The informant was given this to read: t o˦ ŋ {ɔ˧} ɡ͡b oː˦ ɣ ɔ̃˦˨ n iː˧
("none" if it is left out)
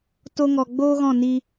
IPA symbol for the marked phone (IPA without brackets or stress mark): ɔ˧